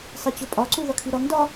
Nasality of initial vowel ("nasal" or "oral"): oral